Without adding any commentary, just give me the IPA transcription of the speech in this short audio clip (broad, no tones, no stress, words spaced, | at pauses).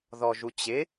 ðɔʒut͡ɕɪ